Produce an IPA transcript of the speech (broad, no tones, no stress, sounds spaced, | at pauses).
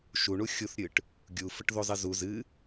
ʃ u ɳ u xʲ u θ ɾʲ ɨ ʈ | ɡʲ u f ə ʈ ð u zˤ ɨ z u z ɨ